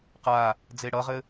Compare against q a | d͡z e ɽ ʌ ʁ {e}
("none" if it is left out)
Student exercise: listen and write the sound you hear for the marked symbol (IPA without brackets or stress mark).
ɘ